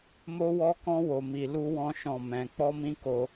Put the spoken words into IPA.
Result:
m o˦ w ɔ˦ k ɔ̃˦ w o˧ m i˧ l u˦ w ɔ̃˦ ʃ ɔ̃˦˨ m ɛ̃˧ k͡p ɔ˦ m ĩ˦ k o˧

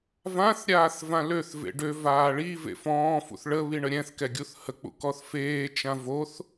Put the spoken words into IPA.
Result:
v ã θ ɾʲ aː θ v ã l ø θ v ḛ ɖ ø v aː ɭ i v ḛ f ɔ̃ː f ṵ θ ɭ ə β i ɳ ə ɾʲ ɛ̃ θ k ɛ ɡʲ u θ h ə k͡p ṵ k ɔ θ f eː t͡ʃ ã v o θ

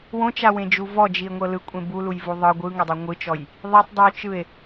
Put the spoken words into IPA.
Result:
w õ t͡ʃ a w ẽ d͡ʒ u v ɔ d͡ʒ i e̯ ŋʷ ɤ l ɯ kʷʼ ẽ b u l u j v u ðˤ ɤ ɡʷ ɯ ŋ ɤ dˤ ɯ ŋʷ ɯ t͡ʃ ɔ j | ðˤ i tˤ dˤ ɯ o̯ t͡ʃ ɯ e̯

